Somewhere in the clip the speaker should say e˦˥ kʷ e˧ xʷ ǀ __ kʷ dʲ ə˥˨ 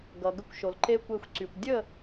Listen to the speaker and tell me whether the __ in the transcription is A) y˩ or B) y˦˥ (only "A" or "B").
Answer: A